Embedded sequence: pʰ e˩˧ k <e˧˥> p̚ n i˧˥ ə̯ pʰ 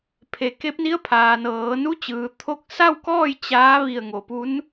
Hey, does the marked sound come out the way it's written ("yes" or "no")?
yes